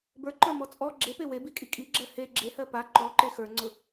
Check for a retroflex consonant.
absent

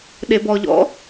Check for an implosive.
present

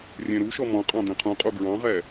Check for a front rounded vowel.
absent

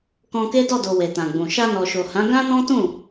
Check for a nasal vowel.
present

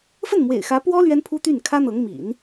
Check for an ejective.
absent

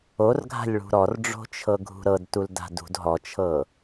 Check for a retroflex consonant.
present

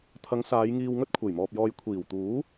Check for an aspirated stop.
present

